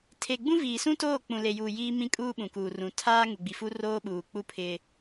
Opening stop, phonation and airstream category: aspirated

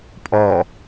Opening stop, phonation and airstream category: ejective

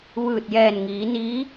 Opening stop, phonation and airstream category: plain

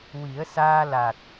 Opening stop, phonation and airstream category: plain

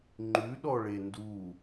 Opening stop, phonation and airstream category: click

